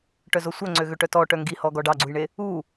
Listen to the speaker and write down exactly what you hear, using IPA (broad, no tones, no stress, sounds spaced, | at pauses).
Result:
ʈ œ z o sʷ œ ŋ͡ǀ ø ɣ ø ʈ œ t ɔ ʈ œ ŋ ɡ i h ɔ ɡ ɔ ɖ ɑ ɡ͡ǀ u j ɳ e | u